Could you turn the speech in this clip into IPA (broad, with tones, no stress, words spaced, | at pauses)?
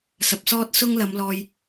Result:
sɐ˨p̚sɔː˥t̚sʊ˥ŋ lɐ˨˧mlɔː˧j